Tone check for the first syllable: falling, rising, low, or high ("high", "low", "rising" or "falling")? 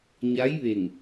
rising